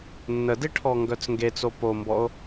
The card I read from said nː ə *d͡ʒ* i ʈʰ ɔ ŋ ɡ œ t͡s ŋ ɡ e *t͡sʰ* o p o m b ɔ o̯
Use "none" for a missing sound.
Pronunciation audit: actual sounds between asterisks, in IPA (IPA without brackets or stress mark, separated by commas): d, t͡s